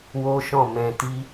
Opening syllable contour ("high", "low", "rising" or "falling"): high